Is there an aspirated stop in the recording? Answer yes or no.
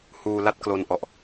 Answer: no